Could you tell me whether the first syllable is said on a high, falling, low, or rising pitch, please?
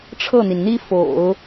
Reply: falling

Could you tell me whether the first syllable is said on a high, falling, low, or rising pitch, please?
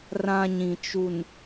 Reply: high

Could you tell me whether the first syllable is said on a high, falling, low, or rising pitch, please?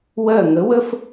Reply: falling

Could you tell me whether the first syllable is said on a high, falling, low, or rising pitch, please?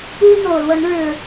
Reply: high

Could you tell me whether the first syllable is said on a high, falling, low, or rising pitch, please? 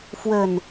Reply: low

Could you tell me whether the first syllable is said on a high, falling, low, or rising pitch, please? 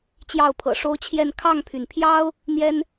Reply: falling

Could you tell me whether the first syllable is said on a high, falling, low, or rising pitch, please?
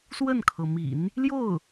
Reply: falling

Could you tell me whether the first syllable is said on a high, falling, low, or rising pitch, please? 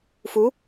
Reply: rising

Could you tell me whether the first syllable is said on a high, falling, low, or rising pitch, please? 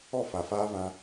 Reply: falling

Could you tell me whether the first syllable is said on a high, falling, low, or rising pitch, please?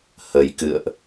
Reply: low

